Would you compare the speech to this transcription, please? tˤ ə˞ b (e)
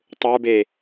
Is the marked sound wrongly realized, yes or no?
no